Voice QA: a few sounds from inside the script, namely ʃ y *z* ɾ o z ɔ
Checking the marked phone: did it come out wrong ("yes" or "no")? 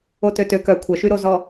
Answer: yes